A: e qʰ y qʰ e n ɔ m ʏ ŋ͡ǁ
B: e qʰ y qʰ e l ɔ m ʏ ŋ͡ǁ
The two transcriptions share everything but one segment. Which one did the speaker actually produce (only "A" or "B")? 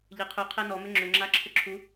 A